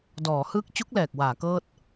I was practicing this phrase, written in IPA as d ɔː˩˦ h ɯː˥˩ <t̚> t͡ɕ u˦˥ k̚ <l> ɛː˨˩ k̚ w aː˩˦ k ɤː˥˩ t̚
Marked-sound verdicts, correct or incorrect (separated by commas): incorrect, correct